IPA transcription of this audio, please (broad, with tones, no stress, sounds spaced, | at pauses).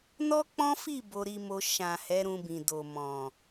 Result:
n ɔ˦ k͡p ɔ̃˦ f i˦˨ b o˧ ɾ i˧ m o˧ ʃ ã˨ h ɛ˨˦ ɾ ũ˧ b ĩ˨ d o˨ m ɔ̃˨